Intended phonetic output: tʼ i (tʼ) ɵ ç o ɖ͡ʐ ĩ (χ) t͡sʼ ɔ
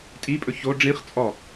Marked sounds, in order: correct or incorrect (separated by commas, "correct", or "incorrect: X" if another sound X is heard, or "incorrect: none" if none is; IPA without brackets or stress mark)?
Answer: incorrect: pʼ, correct